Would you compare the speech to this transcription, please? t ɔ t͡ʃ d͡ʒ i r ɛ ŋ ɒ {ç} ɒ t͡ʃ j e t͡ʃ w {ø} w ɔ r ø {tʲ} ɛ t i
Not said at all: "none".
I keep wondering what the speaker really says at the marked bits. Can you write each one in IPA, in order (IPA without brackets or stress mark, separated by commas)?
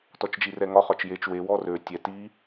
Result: χ, e, tʲ